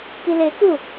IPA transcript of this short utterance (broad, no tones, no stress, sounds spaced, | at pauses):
k i l e k u